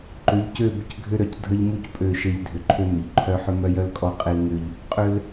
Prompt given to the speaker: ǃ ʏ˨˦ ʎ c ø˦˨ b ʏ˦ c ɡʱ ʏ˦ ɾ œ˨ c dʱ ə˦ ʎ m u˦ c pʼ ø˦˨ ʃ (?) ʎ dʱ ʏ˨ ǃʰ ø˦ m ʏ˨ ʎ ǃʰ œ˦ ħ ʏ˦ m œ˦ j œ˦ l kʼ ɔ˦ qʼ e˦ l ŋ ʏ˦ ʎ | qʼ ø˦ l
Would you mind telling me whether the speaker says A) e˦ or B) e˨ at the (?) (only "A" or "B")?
A